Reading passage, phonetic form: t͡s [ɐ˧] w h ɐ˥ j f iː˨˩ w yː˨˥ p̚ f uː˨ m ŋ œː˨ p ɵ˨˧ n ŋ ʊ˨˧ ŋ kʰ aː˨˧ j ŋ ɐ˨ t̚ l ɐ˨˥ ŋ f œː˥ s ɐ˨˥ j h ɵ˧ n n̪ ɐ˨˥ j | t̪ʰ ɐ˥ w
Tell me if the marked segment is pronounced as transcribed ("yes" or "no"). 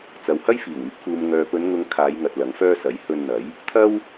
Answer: no